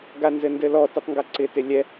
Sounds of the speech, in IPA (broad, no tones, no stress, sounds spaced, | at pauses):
ɡ a n z ɘ n d ɘ l ɔ t ɪ tˤ ŋ ɡ a ǀ ɪ t ɪ lʲ ɛ